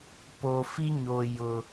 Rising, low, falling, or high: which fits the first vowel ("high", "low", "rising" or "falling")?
low